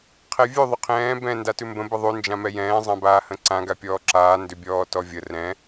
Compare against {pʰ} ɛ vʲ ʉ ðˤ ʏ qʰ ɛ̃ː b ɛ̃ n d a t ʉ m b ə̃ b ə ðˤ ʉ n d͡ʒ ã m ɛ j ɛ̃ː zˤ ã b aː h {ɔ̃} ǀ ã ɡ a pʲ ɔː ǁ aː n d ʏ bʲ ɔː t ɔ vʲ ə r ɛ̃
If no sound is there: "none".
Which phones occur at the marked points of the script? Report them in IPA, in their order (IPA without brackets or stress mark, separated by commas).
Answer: qʰ, ə̃